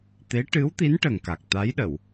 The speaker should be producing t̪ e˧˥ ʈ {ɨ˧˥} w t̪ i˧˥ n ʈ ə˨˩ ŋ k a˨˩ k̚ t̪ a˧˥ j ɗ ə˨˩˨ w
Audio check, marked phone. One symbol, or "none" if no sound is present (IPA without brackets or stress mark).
ɨ˧˥